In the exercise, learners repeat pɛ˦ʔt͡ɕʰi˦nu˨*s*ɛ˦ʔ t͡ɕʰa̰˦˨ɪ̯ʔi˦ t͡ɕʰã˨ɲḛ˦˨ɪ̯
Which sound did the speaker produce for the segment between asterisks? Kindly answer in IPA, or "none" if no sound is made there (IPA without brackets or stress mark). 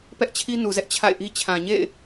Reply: z